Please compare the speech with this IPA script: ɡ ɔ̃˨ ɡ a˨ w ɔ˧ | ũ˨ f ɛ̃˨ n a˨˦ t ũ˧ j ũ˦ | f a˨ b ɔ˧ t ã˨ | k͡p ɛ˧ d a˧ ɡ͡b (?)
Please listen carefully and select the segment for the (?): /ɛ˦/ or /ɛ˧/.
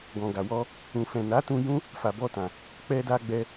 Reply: ɛ˧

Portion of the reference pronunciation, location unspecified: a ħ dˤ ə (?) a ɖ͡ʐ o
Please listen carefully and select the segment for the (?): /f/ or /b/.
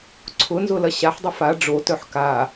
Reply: f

